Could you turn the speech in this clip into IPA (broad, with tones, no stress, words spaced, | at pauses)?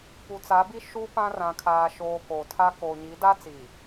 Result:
pu˨t͡sa˨˦bi˦ ʃu˦ pã˦ rã˨kʰaː˨ʃoː˨ ko˨tʰa˦ koː˨ɲi˨˦da˦t͡siː˨